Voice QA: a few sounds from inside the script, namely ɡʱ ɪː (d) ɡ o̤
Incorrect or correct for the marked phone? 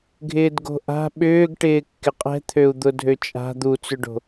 correct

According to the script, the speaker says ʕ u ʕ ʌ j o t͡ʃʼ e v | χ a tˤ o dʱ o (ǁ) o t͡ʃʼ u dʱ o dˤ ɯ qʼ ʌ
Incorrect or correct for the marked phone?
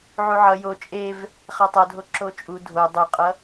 correct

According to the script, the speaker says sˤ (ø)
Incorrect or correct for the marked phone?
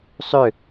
correct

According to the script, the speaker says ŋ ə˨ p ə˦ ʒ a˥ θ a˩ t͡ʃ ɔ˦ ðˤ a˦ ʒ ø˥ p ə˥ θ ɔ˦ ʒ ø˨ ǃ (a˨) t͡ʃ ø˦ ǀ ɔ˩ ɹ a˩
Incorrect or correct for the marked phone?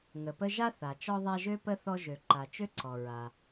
correct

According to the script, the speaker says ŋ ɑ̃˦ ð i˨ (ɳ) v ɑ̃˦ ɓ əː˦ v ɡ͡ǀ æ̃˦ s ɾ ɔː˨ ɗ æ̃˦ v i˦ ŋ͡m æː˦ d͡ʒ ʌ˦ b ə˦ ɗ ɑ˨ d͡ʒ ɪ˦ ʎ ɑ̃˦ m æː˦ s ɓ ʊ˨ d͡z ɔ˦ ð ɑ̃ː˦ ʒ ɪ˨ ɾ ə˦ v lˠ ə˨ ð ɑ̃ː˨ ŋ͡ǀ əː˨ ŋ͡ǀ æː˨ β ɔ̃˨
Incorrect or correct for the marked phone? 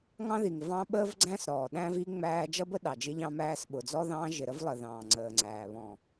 incorrect: ŋ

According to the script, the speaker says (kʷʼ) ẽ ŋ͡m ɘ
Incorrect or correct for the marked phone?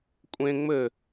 correct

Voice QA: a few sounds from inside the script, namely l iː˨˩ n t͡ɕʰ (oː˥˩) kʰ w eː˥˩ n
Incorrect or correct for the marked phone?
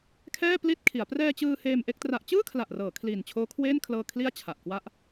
incorrect: oː˦˥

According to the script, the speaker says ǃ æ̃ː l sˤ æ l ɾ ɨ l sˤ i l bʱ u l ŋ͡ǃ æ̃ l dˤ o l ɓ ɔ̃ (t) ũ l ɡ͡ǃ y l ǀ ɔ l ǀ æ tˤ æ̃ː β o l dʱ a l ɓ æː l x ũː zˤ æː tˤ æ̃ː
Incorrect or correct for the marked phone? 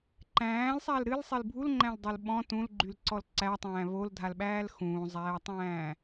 correct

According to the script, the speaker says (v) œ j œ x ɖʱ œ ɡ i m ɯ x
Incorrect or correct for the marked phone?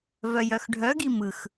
correct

